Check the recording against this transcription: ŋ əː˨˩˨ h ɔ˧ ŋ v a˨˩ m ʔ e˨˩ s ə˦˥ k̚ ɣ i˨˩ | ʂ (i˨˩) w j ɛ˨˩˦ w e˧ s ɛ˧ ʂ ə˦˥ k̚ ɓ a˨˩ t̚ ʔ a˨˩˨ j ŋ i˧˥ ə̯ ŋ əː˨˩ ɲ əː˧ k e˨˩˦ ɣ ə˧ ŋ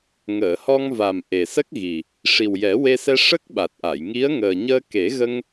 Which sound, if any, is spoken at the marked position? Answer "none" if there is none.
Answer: i˨˩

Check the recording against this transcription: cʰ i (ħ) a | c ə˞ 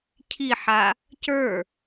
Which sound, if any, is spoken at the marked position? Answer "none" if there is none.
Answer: ħ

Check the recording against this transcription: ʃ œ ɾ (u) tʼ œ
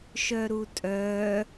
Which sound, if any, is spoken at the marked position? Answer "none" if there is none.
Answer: u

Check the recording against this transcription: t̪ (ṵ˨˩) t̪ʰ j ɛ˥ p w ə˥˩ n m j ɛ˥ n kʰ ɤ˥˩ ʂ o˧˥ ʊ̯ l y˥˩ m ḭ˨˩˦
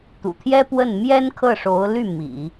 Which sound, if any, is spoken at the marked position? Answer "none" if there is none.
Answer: ṵ˨˩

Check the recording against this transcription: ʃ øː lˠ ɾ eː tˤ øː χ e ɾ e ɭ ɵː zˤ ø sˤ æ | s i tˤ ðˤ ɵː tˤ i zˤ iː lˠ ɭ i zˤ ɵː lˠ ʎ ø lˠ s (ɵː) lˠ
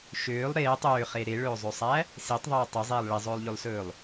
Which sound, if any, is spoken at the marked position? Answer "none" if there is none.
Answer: ɵː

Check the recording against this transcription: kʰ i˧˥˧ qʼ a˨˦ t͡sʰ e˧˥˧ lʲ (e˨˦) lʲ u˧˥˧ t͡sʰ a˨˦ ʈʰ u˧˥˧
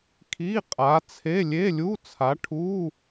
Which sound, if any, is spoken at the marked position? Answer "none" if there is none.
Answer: e˧˥˧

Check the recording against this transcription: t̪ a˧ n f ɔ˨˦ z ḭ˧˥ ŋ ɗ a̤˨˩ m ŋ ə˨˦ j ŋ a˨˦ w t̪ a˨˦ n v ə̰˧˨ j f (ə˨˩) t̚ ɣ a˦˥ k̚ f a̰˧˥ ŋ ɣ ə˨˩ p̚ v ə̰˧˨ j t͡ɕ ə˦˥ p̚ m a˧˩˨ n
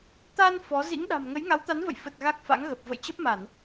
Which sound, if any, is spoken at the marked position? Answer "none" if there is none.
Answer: ə˨˩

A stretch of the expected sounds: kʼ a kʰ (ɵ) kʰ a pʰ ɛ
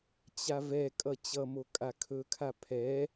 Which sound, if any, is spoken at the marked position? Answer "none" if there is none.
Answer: ɵ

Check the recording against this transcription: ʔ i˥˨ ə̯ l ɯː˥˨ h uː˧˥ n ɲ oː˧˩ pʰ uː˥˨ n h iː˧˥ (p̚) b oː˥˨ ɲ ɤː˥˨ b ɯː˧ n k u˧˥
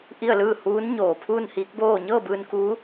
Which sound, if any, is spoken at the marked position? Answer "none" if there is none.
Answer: k̚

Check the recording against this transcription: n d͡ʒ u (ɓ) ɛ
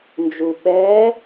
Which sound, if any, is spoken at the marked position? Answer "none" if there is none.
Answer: ɓ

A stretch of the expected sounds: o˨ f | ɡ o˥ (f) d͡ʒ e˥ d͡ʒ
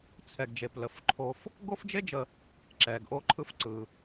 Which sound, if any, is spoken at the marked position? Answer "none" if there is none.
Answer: f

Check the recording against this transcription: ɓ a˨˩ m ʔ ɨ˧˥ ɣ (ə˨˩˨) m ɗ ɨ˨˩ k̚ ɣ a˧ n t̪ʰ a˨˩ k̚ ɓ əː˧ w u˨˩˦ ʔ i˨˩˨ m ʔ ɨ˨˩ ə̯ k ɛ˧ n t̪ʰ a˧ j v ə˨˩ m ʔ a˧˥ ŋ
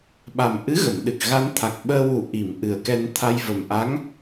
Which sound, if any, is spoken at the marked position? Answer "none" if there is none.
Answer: ə˨˩˨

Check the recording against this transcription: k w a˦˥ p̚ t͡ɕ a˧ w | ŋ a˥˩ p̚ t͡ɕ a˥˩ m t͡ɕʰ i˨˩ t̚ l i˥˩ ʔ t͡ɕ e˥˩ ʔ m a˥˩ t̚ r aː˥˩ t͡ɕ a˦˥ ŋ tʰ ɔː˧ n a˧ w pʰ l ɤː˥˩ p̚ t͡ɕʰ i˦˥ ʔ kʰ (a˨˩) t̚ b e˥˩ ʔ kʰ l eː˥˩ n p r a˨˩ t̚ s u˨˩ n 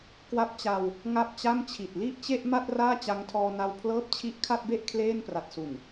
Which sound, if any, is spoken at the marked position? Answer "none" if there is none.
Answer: a˥˩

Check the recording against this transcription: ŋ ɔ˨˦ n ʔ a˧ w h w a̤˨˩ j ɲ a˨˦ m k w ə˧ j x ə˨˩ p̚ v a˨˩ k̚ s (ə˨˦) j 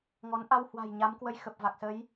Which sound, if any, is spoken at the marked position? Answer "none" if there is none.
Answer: ə˨˦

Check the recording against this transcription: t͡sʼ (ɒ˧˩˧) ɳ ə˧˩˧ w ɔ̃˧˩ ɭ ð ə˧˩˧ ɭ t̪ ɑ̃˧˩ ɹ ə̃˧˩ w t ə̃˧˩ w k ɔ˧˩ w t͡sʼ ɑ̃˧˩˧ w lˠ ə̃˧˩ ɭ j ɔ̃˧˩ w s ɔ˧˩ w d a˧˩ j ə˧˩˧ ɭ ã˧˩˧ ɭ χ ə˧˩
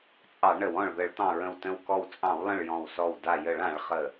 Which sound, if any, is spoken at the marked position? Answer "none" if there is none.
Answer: ɑ˧˩˧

